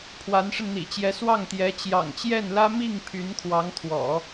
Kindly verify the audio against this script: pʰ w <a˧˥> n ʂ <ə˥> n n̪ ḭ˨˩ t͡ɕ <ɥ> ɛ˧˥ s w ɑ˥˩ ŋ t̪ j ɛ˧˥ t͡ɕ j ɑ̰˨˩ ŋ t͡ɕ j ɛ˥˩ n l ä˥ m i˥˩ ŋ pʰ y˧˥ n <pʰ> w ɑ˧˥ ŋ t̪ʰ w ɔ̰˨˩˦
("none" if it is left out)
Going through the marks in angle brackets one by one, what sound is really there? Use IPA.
a˧˥, ə˧, j, kʰ

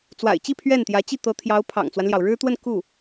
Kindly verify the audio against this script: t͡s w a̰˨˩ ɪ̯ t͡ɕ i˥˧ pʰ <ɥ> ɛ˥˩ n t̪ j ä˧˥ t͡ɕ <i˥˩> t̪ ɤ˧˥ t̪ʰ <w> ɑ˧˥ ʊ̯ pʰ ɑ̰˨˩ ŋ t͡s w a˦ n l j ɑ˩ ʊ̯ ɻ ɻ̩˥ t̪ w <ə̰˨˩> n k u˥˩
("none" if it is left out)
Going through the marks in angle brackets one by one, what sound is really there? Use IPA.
ɥ, i˥˩, j, ə˥˧

